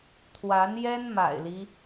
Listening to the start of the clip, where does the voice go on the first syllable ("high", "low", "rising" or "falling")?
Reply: rising